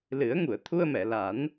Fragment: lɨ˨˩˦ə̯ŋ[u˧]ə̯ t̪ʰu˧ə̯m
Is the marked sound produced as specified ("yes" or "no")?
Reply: no